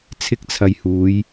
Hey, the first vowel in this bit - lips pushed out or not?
no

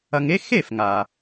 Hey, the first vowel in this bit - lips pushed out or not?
no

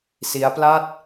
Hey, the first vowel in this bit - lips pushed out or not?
no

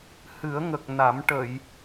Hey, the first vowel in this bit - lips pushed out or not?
no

